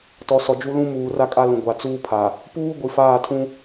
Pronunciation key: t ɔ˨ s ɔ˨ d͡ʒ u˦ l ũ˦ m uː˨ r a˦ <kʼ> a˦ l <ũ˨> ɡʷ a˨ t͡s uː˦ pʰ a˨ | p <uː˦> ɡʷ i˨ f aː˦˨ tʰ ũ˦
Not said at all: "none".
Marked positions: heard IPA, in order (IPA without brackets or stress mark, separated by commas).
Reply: kʼ, ũ˨, uː˦